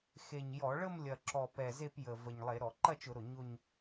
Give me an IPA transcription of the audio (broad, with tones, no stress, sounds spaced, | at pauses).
x e˨˩ ɲ j ɔ˧˩˧ ɭ ə˥˧ m lʲ ɐ˨˩ ǁ ɔ˨˩ p ɛ˨˩ z e˥˧ p j ə˨˩ v ə˨˩ ɲ lˠ e˧˩˧ ɾ ɔ˧˩˧ ǃ ɐ˥˧ t͡ʃ ʊ˧˩˧ ɾ ʊ˨˩ ɲ ʊ˥˧ ɲ